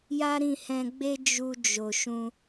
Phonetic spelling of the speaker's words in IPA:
j a˦ ɾ ĩ˦˨ h ɛ̃˧ ɡ͡b e˦ d͡ʒ u˧ d͡ʒ o˨ ʃ ũ˧

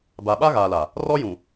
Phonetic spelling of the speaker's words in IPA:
b a˨ ɓ a˦ ɣ aː˨ l a˨ | r ɔ˦ j ũ˨

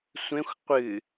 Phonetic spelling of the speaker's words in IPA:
sʷ ẽ xʷ qʷ ɨ

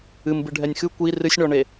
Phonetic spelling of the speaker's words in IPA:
ɨ m b ɨ ɖʱ ɛ nʲ x ɨ kʷ i r ɨ sʲ ɳ ɔ ɳ e

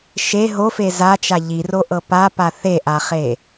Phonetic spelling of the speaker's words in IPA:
ʃ e ɦ o f e z a t͡ʃ a ʎ i r o ʔ ɤ p a p a θ e ʔ a χ e

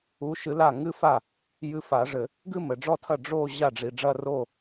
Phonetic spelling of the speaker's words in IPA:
u˧˥ ʃ ɨ˧˥ l a˥˩ ŋ ɨ˥˧ f a˥˩ | j ɨ˧˥ f a˨˩˦ ʐ ɘ˨˩˦ | ɡ ɨ˥˧ m ɘ˨ ɖ͡ʐ ɔ˥˩ tʰ ɐ˥˩ ɖ͡ʐ o˥˧ ʑ a˥˩ ɖ͡ʐ i˨ ɖ͡ʐ ɐ˥˧ r o˥˧

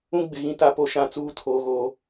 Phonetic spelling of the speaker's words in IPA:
ũ˦ ɡ͡b ɪ˨ ɣ ĩ˨ t a˨ p o˨ ʃ ã˨ t͡s uː˦ tʰ oː˨ ɣ oː˨

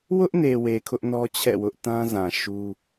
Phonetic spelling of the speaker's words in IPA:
w ʊ˦ ʔ n e˨ w e˨ kʰ ʊ˦ ʔ n ɔ˦ t͡ɕʰ ɛ̰˦˨ w ʊ˦ ʔ t ã˦ z ã˨ ʃ u˦

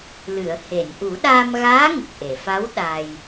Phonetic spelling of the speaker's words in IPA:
l ɨ˨˩˨ ə̯ h e˨˩˨ n ʔ u˨˩˦ ɗ aː˧ m ɣ aː˧˥ ŋ ə˨˩ k̚ ʔ e˨˩˨ f a˧˥ w ɗ a˧ j

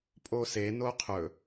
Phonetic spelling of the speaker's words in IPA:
pʼ o s e n o qʰ ɵ

